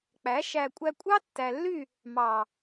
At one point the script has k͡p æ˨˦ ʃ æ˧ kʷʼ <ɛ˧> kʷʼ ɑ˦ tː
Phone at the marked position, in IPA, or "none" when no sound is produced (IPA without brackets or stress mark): æ˧